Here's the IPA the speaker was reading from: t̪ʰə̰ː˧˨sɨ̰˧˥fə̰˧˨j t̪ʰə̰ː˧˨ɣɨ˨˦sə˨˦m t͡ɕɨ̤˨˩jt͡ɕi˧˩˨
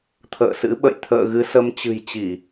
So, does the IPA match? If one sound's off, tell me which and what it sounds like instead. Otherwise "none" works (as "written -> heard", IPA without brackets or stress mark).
f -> ɓ